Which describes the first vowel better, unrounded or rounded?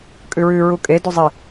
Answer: rounded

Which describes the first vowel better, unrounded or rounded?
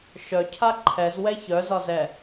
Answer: rounded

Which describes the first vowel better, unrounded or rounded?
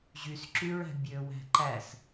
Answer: rounded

